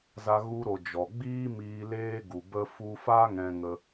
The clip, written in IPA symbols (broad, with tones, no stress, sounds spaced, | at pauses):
z a˧ ɣ u˧ ɾ o˨ d͡ʒ ɔ˨ ɡ͡b iː˦ m iː˧ l eː˦ ɡ u˨ b ə˦ f u˧ f a˦ ŋ ɛ̃˧ ŋ ə˧